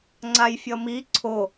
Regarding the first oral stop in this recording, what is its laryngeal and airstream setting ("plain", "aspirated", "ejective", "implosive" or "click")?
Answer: click